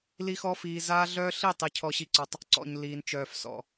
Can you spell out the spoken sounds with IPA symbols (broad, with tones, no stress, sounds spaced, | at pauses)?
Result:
l i˦ x ɔ˦ f iː˧ z aː˦ ɮ œː˦ ɬ i˦˨ tˤ i˧ cʰ ɔ˧ ɕ i˧ ǀ ɔ˧ tˤ | ǀ ɔ̰˨ ɲ l iː˨ n t͡ʃ œː˨ f s ɔ̰˨